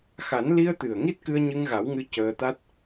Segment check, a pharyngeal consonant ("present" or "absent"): absent